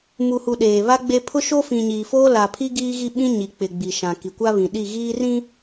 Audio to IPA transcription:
m u˨ h u˨ ɗ eː˨ β a˦ ɡ͡b e˦ pʰ ʊ˦ ʃ o˦ f ĩ˨ ɲ iː˨ f oː˦ l a˨ pʰ i˦ ɡ iː˦ ɣ i˦ ɓ ĩ˦ ɲ i˨ k͡p ɪ˨ ɡ͡b i˨ ʃ ã˨ k i˨ kʷ a˦ β ĩ˨ ɗ i˦˨ ɣ iː˦ r ĩ˦

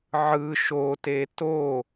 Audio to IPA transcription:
ʕ ɯ ʃ o t e t o

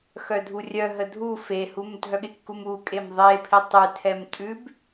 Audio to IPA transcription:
x œ dʱ u rʲ œ ɦ ə dʱ u f e h u m dʱ œ ɠ ɪ kː u m u kʼ e m ðˤ e pʰ ɪ tˤ ʉ tʰ ɛ m tʼ ʉ b

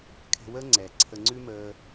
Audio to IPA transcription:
kʰ ɛ̤˧ w əː˥ ŋ͡ǀ ɛ˩ ǀʰ ə˧ ŋ͡ǀ ʉ˥ m əː˧

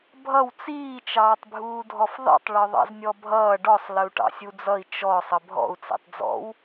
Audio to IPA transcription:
bʱ ʌ w t͡s iː t͡ʃ ɑː tˤ bʱ uː dʱ ɔ f ðˤ ḭ tˤ ɭ ɔ ðˤ ɑ̰ z nʲ ɔ bʱ ʌː ɖ ɔ sˤ l ə u̯ ʈ ɑ̰ sʲ u d͡z ʌ i̯ t͡ʃ ɔ sˤ ə bʱ ɔ̰ u̯ t͡s ḭ tˤ d͡z ɔ̰ w

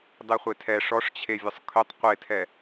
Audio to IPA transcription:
dˤ e χʷ e tʰ ɛ ʂ ɔ ʂ t͡ɕʰ e vʲ ə sˤ kʰ ʏ tˤ qʷ e tʰ ɛ

